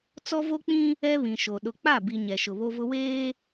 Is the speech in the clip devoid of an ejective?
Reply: yes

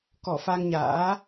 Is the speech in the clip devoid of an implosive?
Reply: yes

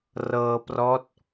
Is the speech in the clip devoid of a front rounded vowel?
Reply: yes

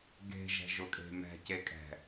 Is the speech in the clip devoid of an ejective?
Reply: no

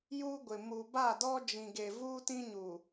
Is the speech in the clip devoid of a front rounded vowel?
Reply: yes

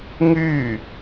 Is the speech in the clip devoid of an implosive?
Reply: yes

